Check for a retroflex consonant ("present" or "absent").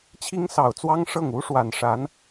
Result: present